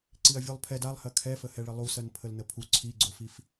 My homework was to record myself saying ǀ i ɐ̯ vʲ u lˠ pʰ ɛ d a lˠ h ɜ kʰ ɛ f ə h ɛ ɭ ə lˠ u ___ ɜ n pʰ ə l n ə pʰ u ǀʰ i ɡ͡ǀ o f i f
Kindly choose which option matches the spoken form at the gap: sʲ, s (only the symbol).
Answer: s